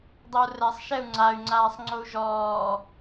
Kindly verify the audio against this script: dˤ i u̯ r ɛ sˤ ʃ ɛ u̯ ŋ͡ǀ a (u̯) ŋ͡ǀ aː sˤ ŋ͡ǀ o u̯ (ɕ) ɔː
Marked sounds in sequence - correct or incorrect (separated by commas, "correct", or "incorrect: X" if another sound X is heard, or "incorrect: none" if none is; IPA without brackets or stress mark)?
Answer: incorrect: y̯, incorrect: ʒ